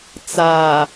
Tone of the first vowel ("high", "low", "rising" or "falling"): low